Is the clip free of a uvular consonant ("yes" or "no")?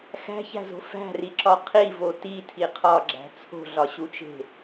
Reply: no